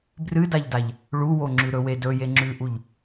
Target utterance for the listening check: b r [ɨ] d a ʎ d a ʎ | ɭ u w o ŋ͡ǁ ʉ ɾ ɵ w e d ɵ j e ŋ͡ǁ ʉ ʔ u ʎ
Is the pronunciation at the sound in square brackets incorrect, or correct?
correct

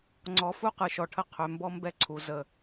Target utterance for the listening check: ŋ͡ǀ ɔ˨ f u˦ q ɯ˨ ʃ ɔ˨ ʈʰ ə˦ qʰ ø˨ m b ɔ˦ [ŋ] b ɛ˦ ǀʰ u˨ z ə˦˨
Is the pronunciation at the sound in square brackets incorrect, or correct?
incorrect: m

